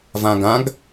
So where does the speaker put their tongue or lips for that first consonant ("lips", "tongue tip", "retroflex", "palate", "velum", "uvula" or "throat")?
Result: lips